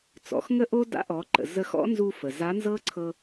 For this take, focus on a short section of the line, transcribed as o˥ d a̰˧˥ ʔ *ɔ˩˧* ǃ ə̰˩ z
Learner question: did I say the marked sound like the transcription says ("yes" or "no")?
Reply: yes